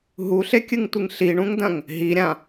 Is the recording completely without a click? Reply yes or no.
yes